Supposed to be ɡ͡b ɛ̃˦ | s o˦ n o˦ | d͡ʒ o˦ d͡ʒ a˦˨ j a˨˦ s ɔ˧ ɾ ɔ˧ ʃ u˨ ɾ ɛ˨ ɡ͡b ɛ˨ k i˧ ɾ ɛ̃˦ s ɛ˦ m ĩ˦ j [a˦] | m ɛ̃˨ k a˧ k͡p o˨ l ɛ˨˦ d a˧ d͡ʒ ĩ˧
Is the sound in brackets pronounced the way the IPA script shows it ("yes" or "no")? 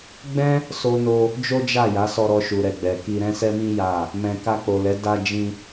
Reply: no